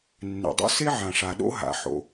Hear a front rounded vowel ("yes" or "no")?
no